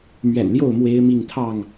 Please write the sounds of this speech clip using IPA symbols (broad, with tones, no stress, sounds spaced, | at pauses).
m ɥ ɛ̰˨˩ n l j o˥˨ ʊ̯ m w e˦ ɪ̯ m i˥˨ ŋ t̪ʰ ɑ˥˨ ŋ